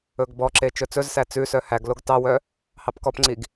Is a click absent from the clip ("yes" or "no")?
no